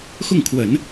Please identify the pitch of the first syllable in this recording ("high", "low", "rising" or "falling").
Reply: falling